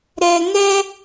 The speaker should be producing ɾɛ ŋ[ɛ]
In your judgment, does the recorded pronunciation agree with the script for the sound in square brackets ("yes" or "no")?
yes